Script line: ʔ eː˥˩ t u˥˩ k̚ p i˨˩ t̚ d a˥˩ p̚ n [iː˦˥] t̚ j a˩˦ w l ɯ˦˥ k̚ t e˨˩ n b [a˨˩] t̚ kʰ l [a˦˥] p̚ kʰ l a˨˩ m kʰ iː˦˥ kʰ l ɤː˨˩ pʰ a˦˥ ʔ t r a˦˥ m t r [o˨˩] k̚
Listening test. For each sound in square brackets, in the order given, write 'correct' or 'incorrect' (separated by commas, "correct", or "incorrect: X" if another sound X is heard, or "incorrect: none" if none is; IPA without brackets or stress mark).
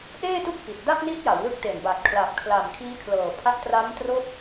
incorrect: i˦˥, correct, incorrect: a˨˩, incorrect: o˦˥